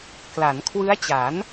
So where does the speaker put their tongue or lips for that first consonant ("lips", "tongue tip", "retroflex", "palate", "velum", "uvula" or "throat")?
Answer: velum